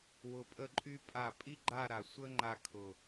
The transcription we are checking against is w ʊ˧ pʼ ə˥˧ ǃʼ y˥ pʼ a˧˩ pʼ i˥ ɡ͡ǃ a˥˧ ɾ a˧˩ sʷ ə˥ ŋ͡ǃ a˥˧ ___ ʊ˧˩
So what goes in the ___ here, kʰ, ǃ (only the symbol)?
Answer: kʰ